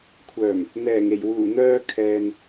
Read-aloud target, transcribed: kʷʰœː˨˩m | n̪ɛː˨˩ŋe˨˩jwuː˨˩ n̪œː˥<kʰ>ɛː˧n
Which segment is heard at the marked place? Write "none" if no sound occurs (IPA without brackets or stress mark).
kʰ